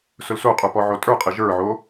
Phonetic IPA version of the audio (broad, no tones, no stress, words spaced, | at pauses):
sʊlsoqʼə˞ pɔʕotʼə˞qʼɪ ʒə˞ʕo